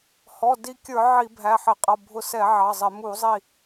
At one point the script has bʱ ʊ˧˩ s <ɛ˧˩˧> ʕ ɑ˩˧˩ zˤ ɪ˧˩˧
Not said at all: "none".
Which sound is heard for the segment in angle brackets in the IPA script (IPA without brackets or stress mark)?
ɛ˧˩˧